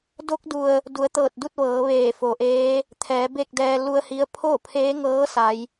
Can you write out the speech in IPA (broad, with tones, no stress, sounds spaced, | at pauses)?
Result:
d o˧˥ k̚ d u˩ ə̯ | d u˩˧ ə̯ t̪ ɤː˧˩ t̚ d u˥˨ t̚ ʋ ɤː˩˧ ʋ eː˧˩ f o˩ ʔ eː˧˥ | t̪ʰ ɛː˩˧ b e˥˨ k̚ d ɛː˧ l u˧ ə̯ h i˧˥ ə̯ pʰ o˥˨ pʰ eː˧˥ ŋ ɤː˧˥ s a˧˥ j